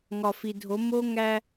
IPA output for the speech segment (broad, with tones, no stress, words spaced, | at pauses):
ŋɒ˨fi˨dʱo˨˦ mo˦ ŋæ˦